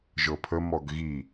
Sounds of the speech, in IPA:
ʒ ɤ pʰ ə m ɔ ɡ ɣ i

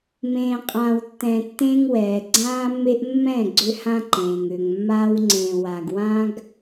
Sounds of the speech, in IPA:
m ẽː˨ qʼ ãː˨ w tː ɛ̃˨ tː ẽ˦ ŋ w ɛː˨ ɡ͡ǀ ãː˦ mː e˦ ʔ mː ɛ̃˦˨ ɡ͡ǀ ʏ˦ h ã˦ ǃ ẽː˨ ŋ ʏː˨ ŋ mː aː˦ w ŋ͡ǀ ẽː˨ w aː˨ ɡ w ã˦ ɡ

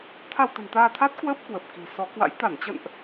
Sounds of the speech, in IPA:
t̪ʰ a˧ w t̪ ə̤˨˩ n t̪ aː˧ t̪ʰ a˦˥ t̚ k w əː˦˥ p̚ k w ə˨˩ p̚ k i̤˨˩ s ɔ˨˦ k w a̰˧˥ j t̪ a˧˩ n t͡ɕ ə̰˧˨ n ʔ

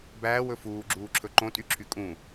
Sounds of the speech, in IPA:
b æː w ɵ f uː ɡ͡ǁ uː ǁʰ ɵ ǃ õ tʼ y ǁʰ y kʼ ũ

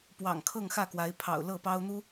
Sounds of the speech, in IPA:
p w ɑ̰˨˩ ŋ kʰ ɤ˥˨ ŋ x ä˥˨ k w a˨˦ ɪ̯ pʰ ɑ̰˨˩ ʊ̯ l ɤ˥˨ p ɑ˦ ʊ̯ n̪ u˦

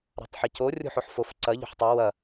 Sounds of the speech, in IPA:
ɾ a̤ tˤ ħ ɪ c o rʲ o̤ ħ o ħ f o f ǀ ɐ ʎ o̤ ħ tˤ ɤ w ɐ

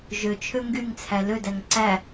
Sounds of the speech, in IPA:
ʒ ø t͡ʃʰ ø ŋ ɡ y ŋ t͡sʰ æ l ø d æ ŋ ǀ æ

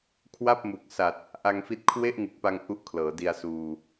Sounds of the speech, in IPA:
kʰ w a˥˩ p̚ m u˨˩ k̚ s a˨˩ t̚ | ʔ a˧ ŋ f i˦˥ t̚ kʰ w e˥˩ ʔ ŋ ɯ˨˩ k̚ p a˧ ŋ ʔ u˦˥ ʔ kʰ l ɤː˩˦ d i˧ a̯ s uː˧

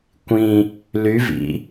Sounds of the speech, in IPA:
kʷ ĩ | l y v ḭ

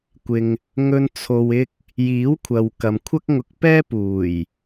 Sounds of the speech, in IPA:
kʷ ɪ˨ ŋ | ŋ ɵ˨ n t͡sʰ o˨ w ɪ˧ k̚ | j iː˨˥ w kʷʰ ɐ˨ w k ɐ˨ m kʷʰ ɐ˥ k̚ ŋ ʊ˧ k̚ p ɛː˥ p uː˨˩ j

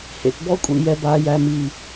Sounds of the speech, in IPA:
h ḛ˨ t b ɔ˦ kʷʼ ḭ˨ j ɛ˨ b aː˨ j æ˨ m iː˨

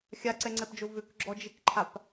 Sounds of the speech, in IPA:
xʲ a ǀ ɛ ŋ͡ǀ ɛ p d͡ʒ o v ʏ k ɡ͡ǁ ɔ d͡ʒ ɪ k ǃʰ a p

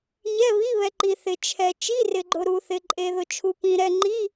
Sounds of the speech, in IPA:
ɲ ɛ˧˥˧ β i˧˥˧ β ɛ˨ ǃ i˨ θ ɪ˨ t͡ʃʰ ɛ˨ t͡ʃ i˧˥˧ r ɪ˨ ɡ͡ǃ ʊ˨ ɾ u˨ θ ɪ˨ ǃʼ e˨ ð ʊ˨ t͡ʃʰ u˨ p ĩ˨ ɾ ɛ˨ ŋ͡ǃ i˧˥˧

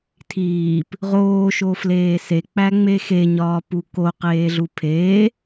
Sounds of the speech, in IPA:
tʰ iː p | ʁ oː ʃ o f l eː s e k͡p æ ŋ͡m e x e ɲ ɒː p u k o q eː ɮ u pʰ eː

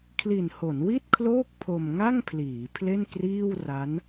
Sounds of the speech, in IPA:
kʰ l i˨˩ n h o˩˦ n w i˥˩ t̚ kʰ l oː˥˩ k̚ pʰ o˧ m ŋ a˥˩ ŋ pʰ l iː˩˦ pʰ l e˥˩ n k r iː˥˩ w r a˦˥ n

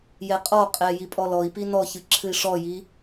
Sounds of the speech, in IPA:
j ɛ qʼ ɔ qʼ ɛ j i pʼ ɔ l ɔ i̯ p i n ɔ ç ɨ ǁʰ ɨ i̯ ʂ ɔ j i

